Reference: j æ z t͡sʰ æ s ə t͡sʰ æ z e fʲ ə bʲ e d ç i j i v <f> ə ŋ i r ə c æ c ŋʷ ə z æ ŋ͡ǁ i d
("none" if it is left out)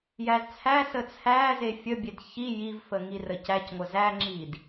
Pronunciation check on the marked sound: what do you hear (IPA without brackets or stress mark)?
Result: f